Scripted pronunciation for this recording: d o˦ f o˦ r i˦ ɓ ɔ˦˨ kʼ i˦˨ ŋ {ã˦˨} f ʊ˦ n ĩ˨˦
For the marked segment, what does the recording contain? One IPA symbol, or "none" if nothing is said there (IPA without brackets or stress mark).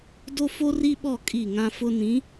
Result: ã˦